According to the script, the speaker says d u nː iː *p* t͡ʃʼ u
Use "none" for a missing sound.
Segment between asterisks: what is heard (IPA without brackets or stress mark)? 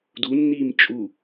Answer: m